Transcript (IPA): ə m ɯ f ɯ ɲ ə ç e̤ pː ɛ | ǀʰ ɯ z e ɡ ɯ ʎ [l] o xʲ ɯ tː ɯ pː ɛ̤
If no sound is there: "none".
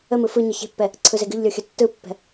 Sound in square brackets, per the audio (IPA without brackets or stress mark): lʲ